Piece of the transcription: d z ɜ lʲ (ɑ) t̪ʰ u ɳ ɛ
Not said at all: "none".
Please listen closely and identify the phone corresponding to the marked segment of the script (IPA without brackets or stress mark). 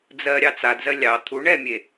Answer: ɑ